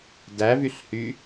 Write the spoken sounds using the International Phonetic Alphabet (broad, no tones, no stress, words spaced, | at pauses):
dævyɬhy